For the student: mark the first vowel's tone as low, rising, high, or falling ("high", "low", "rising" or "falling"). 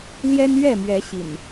high